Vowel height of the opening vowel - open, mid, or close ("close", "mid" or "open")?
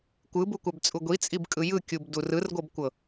close